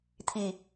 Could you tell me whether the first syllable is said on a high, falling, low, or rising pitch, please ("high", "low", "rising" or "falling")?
low